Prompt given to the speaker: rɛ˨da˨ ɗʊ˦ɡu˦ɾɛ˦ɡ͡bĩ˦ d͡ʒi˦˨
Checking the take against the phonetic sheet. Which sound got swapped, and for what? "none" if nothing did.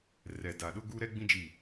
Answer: none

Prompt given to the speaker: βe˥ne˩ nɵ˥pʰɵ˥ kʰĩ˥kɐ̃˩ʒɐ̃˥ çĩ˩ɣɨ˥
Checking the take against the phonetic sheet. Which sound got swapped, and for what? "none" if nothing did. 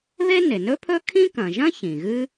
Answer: none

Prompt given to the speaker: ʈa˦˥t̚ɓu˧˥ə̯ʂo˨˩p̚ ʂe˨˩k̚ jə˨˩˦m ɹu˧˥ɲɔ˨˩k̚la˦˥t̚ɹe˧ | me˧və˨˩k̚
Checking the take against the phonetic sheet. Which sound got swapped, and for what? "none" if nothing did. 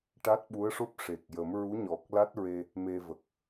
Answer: o˨˩ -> o˦˥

